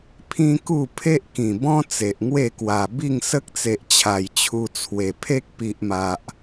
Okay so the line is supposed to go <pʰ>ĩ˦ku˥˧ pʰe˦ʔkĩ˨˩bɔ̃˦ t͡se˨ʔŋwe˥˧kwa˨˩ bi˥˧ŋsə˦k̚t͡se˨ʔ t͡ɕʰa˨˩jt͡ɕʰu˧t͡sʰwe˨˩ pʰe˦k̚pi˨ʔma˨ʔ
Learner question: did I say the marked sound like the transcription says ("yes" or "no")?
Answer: yes